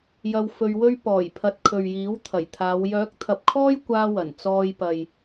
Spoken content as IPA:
j ɐ˧ w f ɵ˧ ɥ w ɵ˥ ɥ p ɔː˨˩ j pʰ ɐ˨ t̚ kʰ ɵ˨ ɥ j iː˨˥ w t̪ʰ ɐ˨˩ j t̪ʰ aː˨˧ w j œː˨˥ k̚ t̪ʰ ɐ˨ p̚ kʰ ɔː˥ j kʷ aː˥ w ɐ˨˩ n t͡s ɔː˧ j p ɐ˨ j

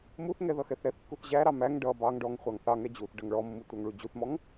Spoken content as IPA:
m u θ ŋ ɛ ð ʌ x ɛ θ ɾ ɛ θ kː u θ ʑ æ ɾ ɑ m æ ŋ ɖ ʌ b ɑ ŋ ɖ ɔ ŋ χʷ ɑ ŋ θ ɑ ŋ ɛ d͡ʑ u θ ɖ ʌ ŋ ɭ ɔ mː u tʷ ɑ ŋ ɭ u d͡ʑ u θ m ɔ ŋ

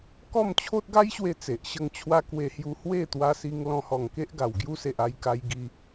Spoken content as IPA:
k ɔ˥˧ m t͡ɕʰ o˦ t̚ ɡ a˦ j ɕ w e˥˧ t͡s e˨ ʔ ɕ ə˥˧ ŋ t͡ɕʰ w a˦ k w e˧ h j u˧ h w e˥˧ t̪ w a˧ s i˧ ŋ l ɔ̃˧ h ɔ˨˩ ŋ k e˦ ʔ ɡ a˨˩ w ɡ j u˧ s e˨ ʔ a˧ j k a˧ j ɡ i˧

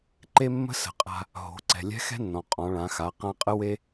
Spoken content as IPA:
ǃ e˥ mː ə̤˥ s ə̤˩˧ qʼ a̤˧ | ɦ o̤˩˧ ǀ ɛ̤˩ lʲ ɛ̤˧˥ x ɛ̤˥ nː ɔ̃˩ qʼ ɔ̃˩˧ ɭ ã˩˧ x a˩˧ q ã˧ qʼ ə˥ w e˥

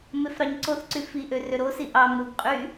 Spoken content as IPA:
m e f ɾ ɑ ɲ ǀ o θ ǀ y f i ʔ ø r ø ɾ o s i ʔ ɑ m ɾ u ɡ qʼ y

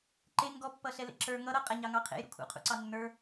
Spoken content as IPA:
ǃ e ŋ ɡ ɔ pː ʌ ɬ ɛ l ḛ ǁ ə˞ ŋ ʌ ɾ ʌ qʼ ɛ ɲ ɑ ŋ ɑ qʰ ḛ j ɾ ṵ kʰ ṵ qʰ ṵ ǀ ɑ nː ə˞

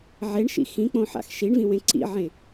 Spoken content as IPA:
ʕ e ɳ ʃ ḭ x ĩ k͡p õ ħ a̰ x ʃ i ɳ v ĩ w ẽ ǀ ḭ ʕ ẽ

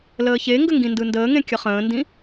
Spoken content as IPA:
l əː ç e ŋ ɡ ə ŋ ɡ ĩ n d ɯ n d əː ŋ ẽ kʲ ə χ ə̃ː n d ĩ

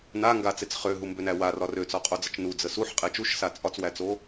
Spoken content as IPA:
n a ŋ ɡ a t͡s e t͡s χ ø ɦ u m b ø n æ w a r ɒ r ø t͡s ɒ qʼ o d͡z ə t͡ʃ n u d͡z ə s u ħ qʼ e t͡ʃ u ʃ s a t͡sʼ ɒ t͡s w æ t͡s o

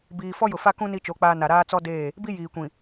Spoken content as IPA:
b iː˨ f ɔ˦ j ʊ˨ f a˦ k ũ˦ n i˦ t͡ʃ o˨˦ k͡p aː˦ n a˨ ɾ aː˦ t͡s ɔ˦ d eː˦˨ | b i˦ j iː˨ kʷ ĩ˨

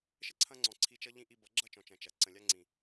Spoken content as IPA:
ʃ ə˦ ǀʰ ɐ̃˧ ŋ͡ǀ ɔ̃˨ ǀʰ i˧ t͡ʃ ʌ˦ ʎ ĩ˦ ʔ i˧ b ʌ˨˦ ɡ͡ǁ ʌ˦ t͡ʃ ɔ̃˨ t͡ʃ ɐ̃˨ t͡ʃ ɐ˨ ǀ ə̃˨ lʲ a˧ ŋ͡ǀ ĩ˨

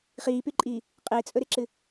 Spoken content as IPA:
χ iː p y ǃʼ iː | qʼ ɪː t͡sʼ ɵ ɾ ɪ ǁ ɨ

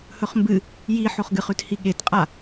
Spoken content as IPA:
h ɵ χ m b ɨ | j i ħ o χ ɡ ɨ χ ʉ t h i ɠ e t qʼ a

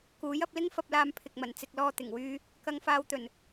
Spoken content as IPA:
k uː˨˥ j ɐ˧ p̚ l ɪ˥ ŋ f ɐ˧ p̚ l aː˧ m pʰ ɪ˨ k̚ m ɐ˨˩ n t͡s ɪ˨ k̚ l ɔː˧ t̪ ɪ˨˩ ŋ w yː˥ | k ɐ˧ ŋ f aː˧ w t̪ ɵ˨˩ n

